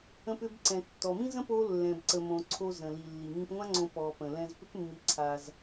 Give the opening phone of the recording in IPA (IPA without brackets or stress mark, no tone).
ə̃